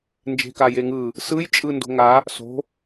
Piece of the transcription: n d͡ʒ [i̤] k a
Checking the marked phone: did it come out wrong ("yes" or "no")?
yes